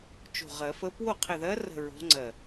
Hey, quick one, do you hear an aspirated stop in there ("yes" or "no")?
yes